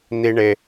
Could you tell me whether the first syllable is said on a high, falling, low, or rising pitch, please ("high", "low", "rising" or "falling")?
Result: high